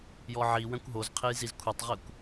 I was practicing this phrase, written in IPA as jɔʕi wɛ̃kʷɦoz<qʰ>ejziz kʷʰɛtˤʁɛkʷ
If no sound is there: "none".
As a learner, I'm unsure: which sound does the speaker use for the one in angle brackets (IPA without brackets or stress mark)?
qʰ